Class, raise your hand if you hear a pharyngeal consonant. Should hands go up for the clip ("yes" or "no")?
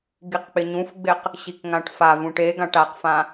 no